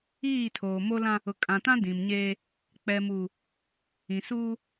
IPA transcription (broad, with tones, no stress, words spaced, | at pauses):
iː˦˨tʰoː˨ mo˦lã˦ | ʊ˨kʼã˨tã˦ dĩ˨mɲeː˦ | k͡pɛ˨muː˨ | ĩ˨suː˦